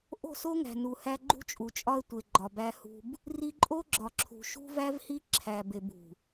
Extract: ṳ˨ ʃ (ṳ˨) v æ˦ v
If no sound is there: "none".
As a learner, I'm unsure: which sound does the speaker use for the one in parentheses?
ṳ˦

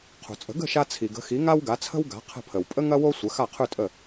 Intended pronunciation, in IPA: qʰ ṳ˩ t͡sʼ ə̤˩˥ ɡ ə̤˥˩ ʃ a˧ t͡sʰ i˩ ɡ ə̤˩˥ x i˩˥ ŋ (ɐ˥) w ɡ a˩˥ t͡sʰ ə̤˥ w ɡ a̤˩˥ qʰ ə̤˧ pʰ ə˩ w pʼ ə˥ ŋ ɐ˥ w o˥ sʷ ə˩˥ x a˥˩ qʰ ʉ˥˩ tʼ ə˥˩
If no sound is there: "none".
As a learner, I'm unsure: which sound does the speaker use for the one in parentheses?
a˥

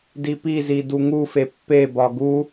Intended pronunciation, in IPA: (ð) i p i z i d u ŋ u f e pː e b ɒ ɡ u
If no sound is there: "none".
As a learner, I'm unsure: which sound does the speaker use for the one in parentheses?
d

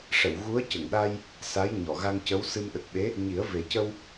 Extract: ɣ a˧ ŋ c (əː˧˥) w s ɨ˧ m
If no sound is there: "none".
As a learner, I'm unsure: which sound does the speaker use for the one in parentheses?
ə˧˥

